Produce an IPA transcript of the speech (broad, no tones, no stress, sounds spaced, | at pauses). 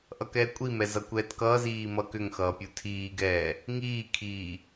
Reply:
ʔ ʌ k ɛː kʷʼ i m ɛ z ʌ kʷ ɛː t k ʌː z iː m ʌ k ʏ ŋ x ʌː pʲ u tʰ iː ɡ ɛː | ŋ iː kʰ iː